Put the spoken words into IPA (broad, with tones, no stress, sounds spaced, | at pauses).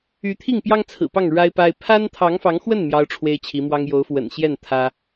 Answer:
y˧˥ t̪ʰ i˥˩ ŋ p j ɑ˥ ŋ t͡sʰ ɹ̩˨˩ p ɑ˥˩ ŋ ɻ a˥ ɪ̯ p a˥ ɪ̯ pʰ a˥ n t̪ʰ ɑ˧˥ ŋ f ɑ˧˥ ŋ x w ə˥˩ n m j ɑ˥ ʊ̯ ʈ͡ʂʰ w e˥ ɪ̯ t͡ɕʰ i˧˥ m w ɑ˥ ŋ j o˧˥ ʊ̯ f w ə̰˨˩ n ɕ j ɛ˥˩ n t̪ʰ ä˥